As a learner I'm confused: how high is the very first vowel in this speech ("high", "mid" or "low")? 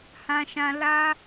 low